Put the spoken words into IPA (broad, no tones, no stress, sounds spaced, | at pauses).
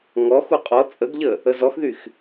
ŋ ɔ x u qʼ ɔ t͡sʼ ə ɡ ʎ ə | ə z ɔ x ð y x